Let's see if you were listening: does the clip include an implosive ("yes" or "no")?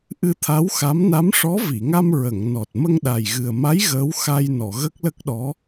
yes